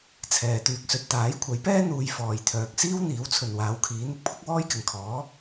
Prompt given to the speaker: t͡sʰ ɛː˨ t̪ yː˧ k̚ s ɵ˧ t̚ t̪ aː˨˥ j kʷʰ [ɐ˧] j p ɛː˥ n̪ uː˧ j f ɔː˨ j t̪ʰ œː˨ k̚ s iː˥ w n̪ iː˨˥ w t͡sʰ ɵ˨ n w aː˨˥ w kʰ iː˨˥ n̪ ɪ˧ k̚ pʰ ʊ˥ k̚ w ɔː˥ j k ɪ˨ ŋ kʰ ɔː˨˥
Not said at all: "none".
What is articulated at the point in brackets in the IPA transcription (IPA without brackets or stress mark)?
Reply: ɐ˨˥